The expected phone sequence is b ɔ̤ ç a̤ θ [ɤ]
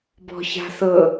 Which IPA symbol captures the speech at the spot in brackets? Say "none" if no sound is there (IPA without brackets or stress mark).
ɤ